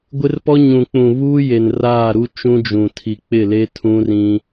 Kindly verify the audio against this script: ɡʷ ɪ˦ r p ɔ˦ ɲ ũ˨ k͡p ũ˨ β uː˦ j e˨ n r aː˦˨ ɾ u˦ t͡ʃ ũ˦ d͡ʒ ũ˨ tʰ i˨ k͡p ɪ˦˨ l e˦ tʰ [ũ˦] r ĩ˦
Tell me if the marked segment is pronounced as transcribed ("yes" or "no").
yes